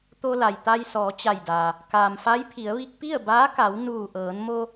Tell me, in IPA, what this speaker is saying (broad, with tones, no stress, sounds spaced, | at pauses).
t̪ o˧ l a˩ j t̪ a˧ j s ɔː˩˧ t͡ɕ a˧˩ j d aː˩ | k aː˩ m f a˧˥ j pʰ i˩˧ ə̯ ʋ i˧ k̚ p i˥˨ ə̯ b aː˧˥ k a˩˧ w n uː˧˩ ʔ ɤː˩˧ n m o˧